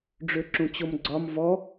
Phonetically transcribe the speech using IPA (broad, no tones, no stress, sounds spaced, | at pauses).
ɖ͡ʐ ø ǁ ũ t͡ɕ o m ɡ͡ǀ ɒ m v ɔ